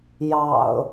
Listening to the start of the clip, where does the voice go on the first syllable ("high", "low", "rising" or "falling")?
low